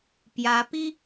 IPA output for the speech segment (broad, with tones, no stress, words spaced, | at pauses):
pjä˧˥ pi˥